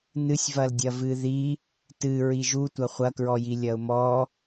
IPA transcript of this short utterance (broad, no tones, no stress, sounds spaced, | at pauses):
n ɨ sʲ v ɐ l dʲ ɐ v ɨ ð i | t ɨ ɹ i ʒ u tʷ ɐ χʷ ɐ k ɹ ɔ j i lʲ ɐ ʊ̯ m ɔ